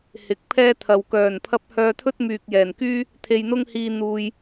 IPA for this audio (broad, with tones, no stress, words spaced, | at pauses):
hɪ˨k̚pʰɛː˥ t̪ʰɐ˨w kœː˨˩npʰɐ˧p̚ hœː˧t̪ʰɵ˥t̚myː˨k̚ jɛː˨˩nkyː˥ | t̪ʰe˧jn̪ʊ˥ŋhiː˧ n̪uː˨j